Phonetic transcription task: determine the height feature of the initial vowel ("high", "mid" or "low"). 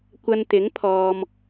low